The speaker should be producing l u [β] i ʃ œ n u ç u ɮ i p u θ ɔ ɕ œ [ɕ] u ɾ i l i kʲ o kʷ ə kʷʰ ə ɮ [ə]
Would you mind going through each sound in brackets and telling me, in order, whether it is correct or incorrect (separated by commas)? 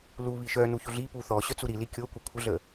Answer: correct, incorrect, correct